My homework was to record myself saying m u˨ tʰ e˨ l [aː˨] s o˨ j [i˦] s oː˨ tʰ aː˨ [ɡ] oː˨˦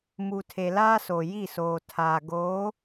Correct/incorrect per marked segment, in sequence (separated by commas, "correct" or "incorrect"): incorrect, incorrect, correct